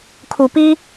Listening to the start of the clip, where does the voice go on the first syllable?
low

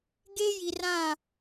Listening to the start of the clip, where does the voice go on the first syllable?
high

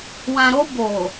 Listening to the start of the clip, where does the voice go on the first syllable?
low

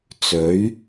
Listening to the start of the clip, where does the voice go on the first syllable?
rising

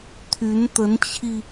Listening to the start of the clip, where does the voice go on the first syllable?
rising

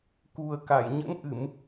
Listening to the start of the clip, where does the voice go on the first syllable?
low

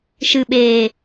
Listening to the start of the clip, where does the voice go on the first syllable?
low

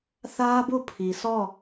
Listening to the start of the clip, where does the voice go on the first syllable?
high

